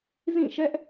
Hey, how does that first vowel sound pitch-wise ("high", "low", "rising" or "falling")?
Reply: falling